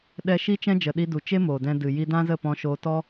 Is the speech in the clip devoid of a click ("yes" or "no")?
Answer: yes